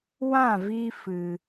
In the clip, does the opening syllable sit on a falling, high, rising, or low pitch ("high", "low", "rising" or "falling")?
falling